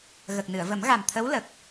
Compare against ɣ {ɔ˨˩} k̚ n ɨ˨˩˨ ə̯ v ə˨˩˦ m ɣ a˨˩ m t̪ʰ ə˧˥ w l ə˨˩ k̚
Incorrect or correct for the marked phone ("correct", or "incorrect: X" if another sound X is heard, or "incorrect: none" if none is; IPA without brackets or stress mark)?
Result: incorrect: ə˨˩